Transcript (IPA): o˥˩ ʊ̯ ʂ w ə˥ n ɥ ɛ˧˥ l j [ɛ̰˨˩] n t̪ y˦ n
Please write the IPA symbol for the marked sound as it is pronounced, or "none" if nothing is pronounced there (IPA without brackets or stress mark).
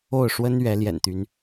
ɛ̰˨˩